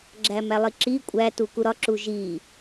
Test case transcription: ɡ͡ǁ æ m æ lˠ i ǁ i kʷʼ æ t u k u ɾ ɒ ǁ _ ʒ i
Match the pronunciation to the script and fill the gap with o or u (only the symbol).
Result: u